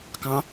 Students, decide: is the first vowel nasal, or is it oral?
nasal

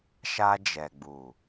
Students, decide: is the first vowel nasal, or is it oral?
oral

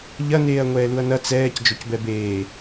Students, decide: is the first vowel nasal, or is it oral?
oral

